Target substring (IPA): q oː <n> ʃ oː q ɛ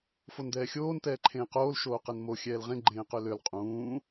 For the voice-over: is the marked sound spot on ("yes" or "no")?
no